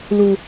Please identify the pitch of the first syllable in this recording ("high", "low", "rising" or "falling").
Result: low